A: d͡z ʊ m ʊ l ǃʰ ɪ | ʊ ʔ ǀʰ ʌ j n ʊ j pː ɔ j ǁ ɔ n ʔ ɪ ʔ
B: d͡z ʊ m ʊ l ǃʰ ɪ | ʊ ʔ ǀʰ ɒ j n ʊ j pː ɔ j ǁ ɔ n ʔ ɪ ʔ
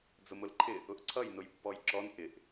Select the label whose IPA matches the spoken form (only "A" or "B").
A